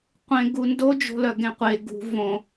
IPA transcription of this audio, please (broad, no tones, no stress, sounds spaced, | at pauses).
qʷ ẽ ɡ u n d o d͡ʒ o̤ l œ ɡ ẽ qʷ e ɡ ṳ v õ